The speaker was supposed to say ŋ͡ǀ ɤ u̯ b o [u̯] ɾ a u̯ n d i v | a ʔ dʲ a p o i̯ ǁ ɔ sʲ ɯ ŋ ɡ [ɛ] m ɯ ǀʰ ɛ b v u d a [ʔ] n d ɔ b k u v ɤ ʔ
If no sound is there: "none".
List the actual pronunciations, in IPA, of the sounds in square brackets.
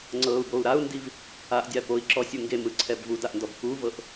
u̯, e, ʔ

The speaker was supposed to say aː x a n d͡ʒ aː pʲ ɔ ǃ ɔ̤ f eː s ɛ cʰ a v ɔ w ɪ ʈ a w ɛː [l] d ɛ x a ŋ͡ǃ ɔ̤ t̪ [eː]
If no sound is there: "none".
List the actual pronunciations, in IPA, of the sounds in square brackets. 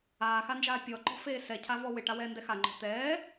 n, ɛː

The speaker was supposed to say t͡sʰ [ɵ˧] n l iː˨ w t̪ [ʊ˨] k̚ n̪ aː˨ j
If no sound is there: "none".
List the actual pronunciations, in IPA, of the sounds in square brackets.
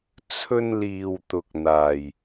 ɵ˧, ʊ˨

